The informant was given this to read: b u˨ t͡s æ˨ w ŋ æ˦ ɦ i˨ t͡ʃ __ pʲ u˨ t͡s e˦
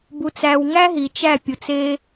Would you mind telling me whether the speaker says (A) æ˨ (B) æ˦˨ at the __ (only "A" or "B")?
B